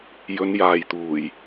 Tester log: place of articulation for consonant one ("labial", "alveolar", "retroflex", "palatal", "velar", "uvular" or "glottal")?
palatal